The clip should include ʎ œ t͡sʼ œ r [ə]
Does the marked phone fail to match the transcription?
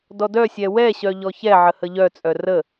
no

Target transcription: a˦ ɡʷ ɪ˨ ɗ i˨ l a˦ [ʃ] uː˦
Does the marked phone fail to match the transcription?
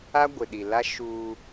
no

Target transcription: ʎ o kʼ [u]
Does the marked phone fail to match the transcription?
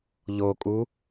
no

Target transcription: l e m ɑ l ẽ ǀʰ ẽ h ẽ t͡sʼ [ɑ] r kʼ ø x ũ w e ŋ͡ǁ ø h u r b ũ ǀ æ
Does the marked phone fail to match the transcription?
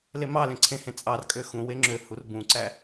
no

